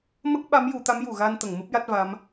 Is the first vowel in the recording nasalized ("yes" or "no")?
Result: no